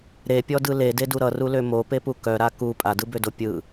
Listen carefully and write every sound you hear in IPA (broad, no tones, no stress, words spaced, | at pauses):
ɾepʲɔdɯ lededu ɾʌrulø mopepu kœɾa ku pʼadɯbødo pʲɯ